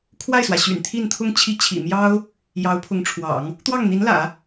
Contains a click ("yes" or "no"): no